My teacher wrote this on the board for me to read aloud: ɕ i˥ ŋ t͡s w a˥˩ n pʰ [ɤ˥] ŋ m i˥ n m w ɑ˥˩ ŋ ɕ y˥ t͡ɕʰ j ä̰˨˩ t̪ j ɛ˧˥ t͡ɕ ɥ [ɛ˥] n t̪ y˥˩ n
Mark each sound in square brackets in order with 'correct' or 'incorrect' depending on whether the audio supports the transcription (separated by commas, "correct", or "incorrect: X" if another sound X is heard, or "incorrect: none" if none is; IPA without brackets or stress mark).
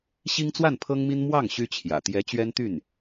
correct, correct